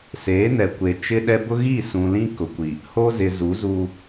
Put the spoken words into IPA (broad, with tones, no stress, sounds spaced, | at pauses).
s eː˨˦ n ɛ˨ kʷ e˨ t͡ʃ ɪ˦ ɗ ɛ˦ b ʊ˦ ɣ i˦˨ s ũ˨ l ĩ˦ k ʊ˨ kʷ i˨ | h o˦ z ɪ˨ z u˨˦ z uː˦